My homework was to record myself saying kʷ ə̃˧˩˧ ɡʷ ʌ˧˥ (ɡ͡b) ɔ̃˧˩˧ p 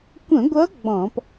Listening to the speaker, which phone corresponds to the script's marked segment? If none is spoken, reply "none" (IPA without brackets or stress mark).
ɡ͡b